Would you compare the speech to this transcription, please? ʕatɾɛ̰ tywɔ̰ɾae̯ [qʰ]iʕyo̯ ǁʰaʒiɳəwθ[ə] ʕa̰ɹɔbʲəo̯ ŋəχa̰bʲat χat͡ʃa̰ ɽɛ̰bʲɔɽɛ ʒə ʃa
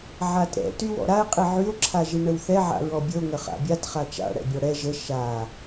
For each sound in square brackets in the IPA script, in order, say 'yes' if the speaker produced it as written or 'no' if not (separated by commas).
no, no